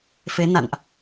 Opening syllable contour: rising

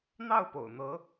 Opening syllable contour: falling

